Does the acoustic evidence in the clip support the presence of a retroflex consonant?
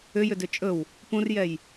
no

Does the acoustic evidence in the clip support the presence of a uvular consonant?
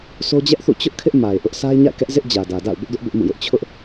no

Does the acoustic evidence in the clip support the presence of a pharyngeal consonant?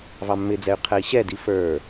no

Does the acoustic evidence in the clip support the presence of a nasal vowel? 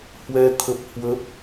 no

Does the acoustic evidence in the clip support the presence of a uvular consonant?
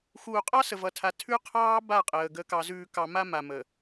yes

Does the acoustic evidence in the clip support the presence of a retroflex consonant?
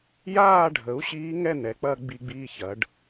yes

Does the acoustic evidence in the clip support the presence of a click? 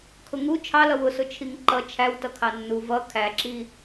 yes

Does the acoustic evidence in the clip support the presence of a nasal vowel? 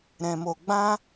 yes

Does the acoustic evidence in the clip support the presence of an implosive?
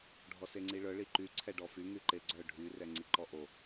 no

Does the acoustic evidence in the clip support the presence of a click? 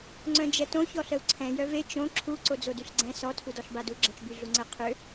yes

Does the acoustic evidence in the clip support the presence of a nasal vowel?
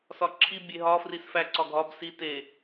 no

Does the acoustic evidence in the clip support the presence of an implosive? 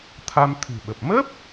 yes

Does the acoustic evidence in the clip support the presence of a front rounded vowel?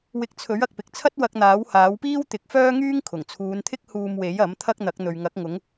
yes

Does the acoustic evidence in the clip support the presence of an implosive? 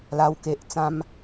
no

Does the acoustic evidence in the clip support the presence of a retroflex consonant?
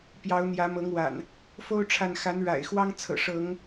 yes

